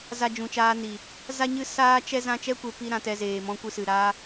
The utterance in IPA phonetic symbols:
z a˧ d͡ʒ ũ˨ t͡ʃ aː˧ n i˨ | z a˦ ɲ ɨ˦ s aː˦ t͡ʃ ɛ˦ z ã˦ t͡ʃ ɛ˦ kʷ e˧ p i˧ ɾ ã˧ t ɛ˧ z eː˨ m ɔ̃˧ kʷ ɨ˧ s ɨ˨ ɾ aː˦

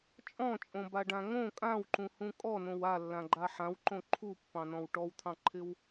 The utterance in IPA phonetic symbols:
t͡ʃʼ ɔ̃ t͡ʃʼ õ b a ɖ ã ŋ õ kʼ ã w ǃ ũ h ũ kʼ ɔ n õ w a lː ã ɡ͡ǃ a ħ ã w ǃ õ ǃʰ u pː ɑ̃ n ɔ̃ w ʈ ɔ w t̪ʰ ɑ̃ ǃʰ ɪ w

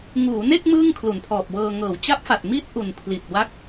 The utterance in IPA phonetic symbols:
ŋ uː˩˦ n e˥˩ k̚ m ɯː˥˩ ŋ kʰ l u˩˦ n pʰ ɔː˨˩ p̚ w ɤː˧ ŋ ɤː˩˦ w t͡ɕ a˦˥ p̚ f a˨˩ t̚ m i˥˩ t̚ ʔ u˨˩ n pʰ l i˨˩ t̚ w a˦˥ k̚

